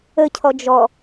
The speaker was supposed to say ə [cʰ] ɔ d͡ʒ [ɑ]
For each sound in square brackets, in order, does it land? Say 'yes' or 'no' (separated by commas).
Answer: yes, no